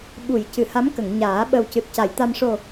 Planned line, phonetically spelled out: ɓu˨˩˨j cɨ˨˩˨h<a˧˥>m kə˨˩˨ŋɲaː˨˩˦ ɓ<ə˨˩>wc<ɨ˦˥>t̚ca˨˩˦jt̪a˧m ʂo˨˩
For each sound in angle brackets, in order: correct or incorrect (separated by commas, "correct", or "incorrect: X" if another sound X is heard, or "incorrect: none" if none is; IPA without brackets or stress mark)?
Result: correct, correct, incorrect: ɨ˨˩